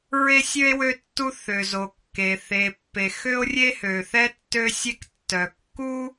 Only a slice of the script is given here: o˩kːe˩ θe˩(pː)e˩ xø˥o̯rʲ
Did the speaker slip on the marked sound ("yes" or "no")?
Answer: no